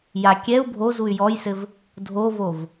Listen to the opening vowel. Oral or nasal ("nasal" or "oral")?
oral